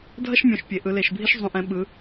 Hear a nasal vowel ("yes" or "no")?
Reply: yes